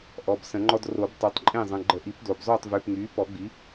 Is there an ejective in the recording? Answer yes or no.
yes